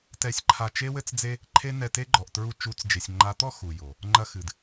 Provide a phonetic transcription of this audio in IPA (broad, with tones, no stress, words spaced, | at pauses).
tɛ˧sʲǃʰa˧ t͡ʃe˦wɘ˦t͡sd͡ze˦ | ǃʰe˦nɛ˧te˦ɡ͡ǃɔ˨ʔ tɹu˧t͡ʃu˨˦t͡sd͡ʒe˨sʲ ŋ͡ǃa˨˦t̪ɔ˦ xu˨jo˨ | ŋ͡ǃɐ˧xɨ˨d